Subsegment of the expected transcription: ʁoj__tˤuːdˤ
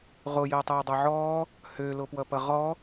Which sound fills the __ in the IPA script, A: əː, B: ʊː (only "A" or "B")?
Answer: A